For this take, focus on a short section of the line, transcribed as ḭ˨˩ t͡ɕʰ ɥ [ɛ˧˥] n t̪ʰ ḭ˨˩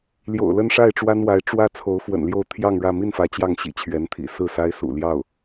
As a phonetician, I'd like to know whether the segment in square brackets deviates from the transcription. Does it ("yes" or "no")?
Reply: no